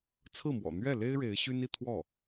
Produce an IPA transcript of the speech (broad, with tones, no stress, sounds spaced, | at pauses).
t͡sʰ ɹ̩˥˩ m w ɔ̰˨˩ n̪ ɥ ɛ˥˩ l e˥ ɪ̯ ɻ e˧˥ ɪ̯ ɕ y˥ n i˥˧ t̪ʰ w ɔ˥˩